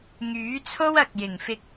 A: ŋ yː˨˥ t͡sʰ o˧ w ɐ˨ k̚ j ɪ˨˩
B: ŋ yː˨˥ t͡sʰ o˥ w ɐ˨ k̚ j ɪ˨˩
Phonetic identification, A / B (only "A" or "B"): B